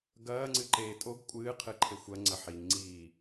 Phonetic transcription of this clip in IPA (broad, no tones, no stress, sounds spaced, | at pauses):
ɡ ɐː ŋ͡ǀ ɨ ǃ eː tʼ o ɡ kʷʼ ɨː qʰ ɨ ǃʰ e xʷ ɐ ŋ͡ǀ ɐ ħ i ŋ ŋ͡ǀ iː